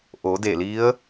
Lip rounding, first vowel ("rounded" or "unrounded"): rounded